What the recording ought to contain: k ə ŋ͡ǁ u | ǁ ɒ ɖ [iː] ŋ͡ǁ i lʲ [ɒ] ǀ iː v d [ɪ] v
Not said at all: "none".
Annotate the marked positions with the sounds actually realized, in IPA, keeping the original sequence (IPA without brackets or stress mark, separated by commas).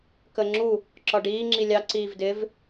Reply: iː, ɑ, ɪ